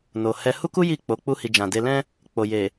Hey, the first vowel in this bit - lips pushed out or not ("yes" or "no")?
yes